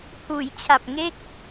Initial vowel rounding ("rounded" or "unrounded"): rounded